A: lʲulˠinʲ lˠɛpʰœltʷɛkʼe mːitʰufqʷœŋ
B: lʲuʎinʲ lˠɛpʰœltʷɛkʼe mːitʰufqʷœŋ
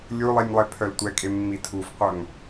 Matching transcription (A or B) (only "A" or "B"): A